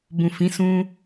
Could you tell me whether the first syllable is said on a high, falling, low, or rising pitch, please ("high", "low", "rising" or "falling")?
low